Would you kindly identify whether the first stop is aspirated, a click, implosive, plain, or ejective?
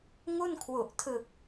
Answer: aspirated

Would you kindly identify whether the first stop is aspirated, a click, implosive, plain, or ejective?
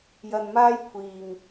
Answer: aspirated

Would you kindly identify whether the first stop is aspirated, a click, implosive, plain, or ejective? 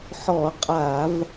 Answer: ejective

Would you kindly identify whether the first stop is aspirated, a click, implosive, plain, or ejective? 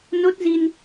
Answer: plain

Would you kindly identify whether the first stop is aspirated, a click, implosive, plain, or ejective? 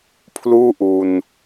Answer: aspirated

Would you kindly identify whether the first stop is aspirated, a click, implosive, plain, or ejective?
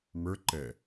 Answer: click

